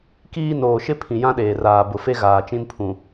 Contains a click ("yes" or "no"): no